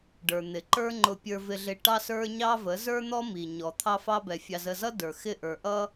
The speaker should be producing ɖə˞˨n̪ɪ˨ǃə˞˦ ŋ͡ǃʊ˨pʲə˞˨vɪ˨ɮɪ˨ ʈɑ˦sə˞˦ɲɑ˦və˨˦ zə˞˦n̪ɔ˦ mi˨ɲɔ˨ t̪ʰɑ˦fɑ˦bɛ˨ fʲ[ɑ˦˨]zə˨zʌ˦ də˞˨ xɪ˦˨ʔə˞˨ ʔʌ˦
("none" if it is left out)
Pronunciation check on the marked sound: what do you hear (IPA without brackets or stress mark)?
ɑ˨